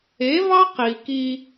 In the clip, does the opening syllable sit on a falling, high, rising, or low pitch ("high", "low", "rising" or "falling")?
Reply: rising